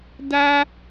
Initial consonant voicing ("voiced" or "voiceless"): voiced